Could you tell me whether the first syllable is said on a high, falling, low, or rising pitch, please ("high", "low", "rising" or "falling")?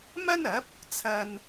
high